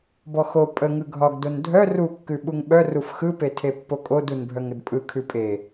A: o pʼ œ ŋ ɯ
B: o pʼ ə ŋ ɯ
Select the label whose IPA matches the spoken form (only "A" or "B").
B